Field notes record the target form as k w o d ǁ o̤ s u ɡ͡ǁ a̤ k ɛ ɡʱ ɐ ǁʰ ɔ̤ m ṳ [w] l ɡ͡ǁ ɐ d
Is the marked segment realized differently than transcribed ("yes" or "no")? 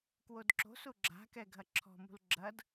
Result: yes